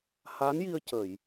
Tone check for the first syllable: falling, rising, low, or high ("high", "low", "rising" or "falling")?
rising